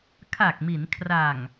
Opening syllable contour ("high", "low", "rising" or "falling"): low